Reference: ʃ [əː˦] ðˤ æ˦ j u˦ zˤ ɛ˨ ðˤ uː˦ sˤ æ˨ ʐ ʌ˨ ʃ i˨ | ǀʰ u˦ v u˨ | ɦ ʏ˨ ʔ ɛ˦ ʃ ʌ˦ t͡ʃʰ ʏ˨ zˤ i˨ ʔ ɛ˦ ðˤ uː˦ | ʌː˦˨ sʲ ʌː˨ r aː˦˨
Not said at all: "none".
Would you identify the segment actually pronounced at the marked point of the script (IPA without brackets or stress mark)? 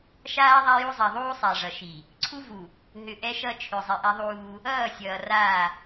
aː˦